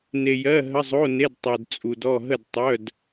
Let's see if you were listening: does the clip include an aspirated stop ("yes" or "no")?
no